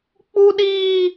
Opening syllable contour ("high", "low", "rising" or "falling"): high